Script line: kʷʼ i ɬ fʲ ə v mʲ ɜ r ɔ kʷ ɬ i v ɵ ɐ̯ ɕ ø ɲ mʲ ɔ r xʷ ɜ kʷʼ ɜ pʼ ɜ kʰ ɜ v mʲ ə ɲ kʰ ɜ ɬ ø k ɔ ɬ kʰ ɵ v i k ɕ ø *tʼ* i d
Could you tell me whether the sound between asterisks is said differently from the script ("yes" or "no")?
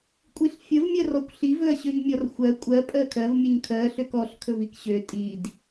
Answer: no